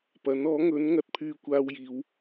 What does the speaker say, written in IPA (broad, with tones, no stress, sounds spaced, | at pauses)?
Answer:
p ɐ˨˥ n ɔː˨˥ ŋ ɵ˨˥ n ŋ ɐ˨ t̚ pʰ yː˧ kʷ aː˧ w j iː˨˧ w